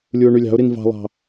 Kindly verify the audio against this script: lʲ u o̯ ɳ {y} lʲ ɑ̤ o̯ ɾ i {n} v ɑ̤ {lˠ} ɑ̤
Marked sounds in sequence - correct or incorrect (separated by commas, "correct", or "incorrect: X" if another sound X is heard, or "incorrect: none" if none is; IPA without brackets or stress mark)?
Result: correct, correct, correct